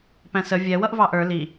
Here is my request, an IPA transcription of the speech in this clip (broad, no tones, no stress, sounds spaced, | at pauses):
p æ̃ s ə vʲ ɛ w ʌ ʔ v ɑ ʔ ə˞ l i